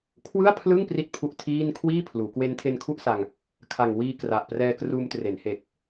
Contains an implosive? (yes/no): no